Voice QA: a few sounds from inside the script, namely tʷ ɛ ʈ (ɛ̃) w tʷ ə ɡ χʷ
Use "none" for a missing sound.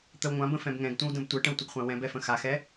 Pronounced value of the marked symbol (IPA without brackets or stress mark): ə̃